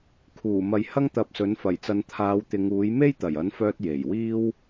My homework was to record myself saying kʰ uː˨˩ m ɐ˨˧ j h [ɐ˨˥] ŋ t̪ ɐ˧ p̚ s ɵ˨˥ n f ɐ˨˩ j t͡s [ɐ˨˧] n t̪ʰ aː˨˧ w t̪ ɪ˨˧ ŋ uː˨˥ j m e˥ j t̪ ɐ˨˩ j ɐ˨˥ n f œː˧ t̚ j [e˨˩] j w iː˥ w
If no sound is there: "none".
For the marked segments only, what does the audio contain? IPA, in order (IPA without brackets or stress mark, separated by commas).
ɐ˥, ɐ˨˧, e˨˩